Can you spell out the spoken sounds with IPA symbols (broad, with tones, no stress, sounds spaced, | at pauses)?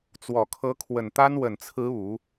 t͡s w ɔ˨˩ kʰ ɤ˧˥ kʰ w ə˨˩ n t̪ a˥ n w ə˨˩ n t͡sʰ ɹ̩˧˥ u˨˩˦